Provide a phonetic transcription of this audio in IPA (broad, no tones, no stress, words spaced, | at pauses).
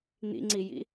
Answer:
n̪ḭŋ͡ǀijḭ